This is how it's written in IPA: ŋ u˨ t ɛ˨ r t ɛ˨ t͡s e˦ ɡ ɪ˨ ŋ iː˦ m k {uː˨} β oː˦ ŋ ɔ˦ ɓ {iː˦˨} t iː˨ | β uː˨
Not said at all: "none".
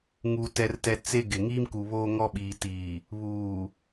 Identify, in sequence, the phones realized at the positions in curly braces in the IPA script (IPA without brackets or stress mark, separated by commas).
u˨, iː˨